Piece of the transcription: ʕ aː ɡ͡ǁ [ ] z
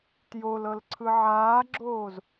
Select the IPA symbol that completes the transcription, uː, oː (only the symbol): oː